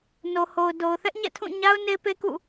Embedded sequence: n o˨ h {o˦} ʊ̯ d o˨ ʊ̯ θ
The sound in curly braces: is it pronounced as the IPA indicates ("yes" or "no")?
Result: no